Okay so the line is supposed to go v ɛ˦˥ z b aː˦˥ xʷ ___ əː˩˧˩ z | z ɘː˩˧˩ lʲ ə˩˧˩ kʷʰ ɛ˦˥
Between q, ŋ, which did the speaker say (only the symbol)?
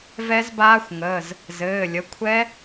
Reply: ŋ